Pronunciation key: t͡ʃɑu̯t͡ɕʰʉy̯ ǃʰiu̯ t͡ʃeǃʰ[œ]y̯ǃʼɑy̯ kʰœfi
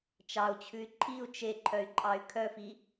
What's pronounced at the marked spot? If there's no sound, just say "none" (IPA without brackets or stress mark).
œ